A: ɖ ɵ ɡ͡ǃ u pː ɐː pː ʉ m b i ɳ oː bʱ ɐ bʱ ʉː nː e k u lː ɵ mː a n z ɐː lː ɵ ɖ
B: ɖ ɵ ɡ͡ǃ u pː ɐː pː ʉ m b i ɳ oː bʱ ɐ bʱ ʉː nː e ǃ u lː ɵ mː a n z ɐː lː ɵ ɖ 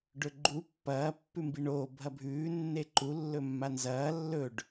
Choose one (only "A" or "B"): B